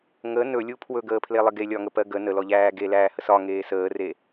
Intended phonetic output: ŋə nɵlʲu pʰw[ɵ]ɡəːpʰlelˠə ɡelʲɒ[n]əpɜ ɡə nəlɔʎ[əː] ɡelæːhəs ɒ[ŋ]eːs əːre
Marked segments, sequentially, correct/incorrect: correct, incorrect: ŋ, incorrect: æː, correct

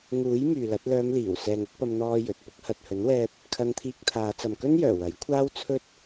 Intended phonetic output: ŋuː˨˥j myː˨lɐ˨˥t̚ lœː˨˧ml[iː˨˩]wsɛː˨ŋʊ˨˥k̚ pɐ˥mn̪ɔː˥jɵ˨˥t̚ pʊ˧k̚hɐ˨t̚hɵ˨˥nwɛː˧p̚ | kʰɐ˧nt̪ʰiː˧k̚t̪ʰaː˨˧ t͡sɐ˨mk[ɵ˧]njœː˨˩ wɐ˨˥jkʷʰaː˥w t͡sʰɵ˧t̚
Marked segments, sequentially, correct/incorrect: correct, incorrect: ɵ˥

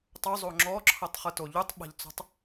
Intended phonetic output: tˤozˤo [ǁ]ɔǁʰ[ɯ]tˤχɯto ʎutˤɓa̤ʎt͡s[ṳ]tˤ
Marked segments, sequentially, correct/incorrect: incorrect: ŋ͡ǁ, incorrect: ɤ, incorrect: o̤

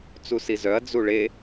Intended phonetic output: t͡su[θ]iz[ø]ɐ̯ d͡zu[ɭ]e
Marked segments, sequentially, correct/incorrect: incorrect: s, incorrect: œ, correct

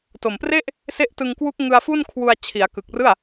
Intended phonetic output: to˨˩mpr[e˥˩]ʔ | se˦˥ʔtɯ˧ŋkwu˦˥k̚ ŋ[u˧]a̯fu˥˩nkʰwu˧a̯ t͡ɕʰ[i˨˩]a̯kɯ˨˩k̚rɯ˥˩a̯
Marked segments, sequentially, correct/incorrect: correct, incorrect: ɯ˧, incorrect: i˩˦

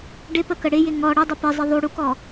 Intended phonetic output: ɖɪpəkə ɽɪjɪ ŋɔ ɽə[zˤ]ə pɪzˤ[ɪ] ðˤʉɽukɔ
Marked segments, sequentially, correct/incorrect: incorrect: dˤ, correct

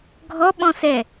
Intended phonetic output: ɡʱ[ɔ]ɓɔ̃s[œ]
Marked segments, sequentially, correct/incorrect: correct, incorrect: ɛ

